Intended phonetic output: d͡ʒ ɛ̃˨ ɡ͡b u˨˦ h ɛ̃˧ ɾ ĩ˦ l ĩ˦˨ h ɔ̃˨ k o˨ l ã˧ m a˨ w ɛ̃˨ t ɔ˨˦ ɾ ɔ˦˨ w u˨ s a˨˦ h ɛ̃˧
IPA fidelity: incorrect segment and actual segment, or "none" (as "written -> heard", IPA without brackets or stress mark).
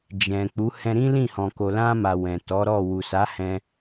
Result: ɡ͡b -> k͡p